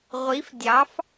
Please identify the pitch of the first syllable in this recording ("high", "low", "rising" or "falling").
rising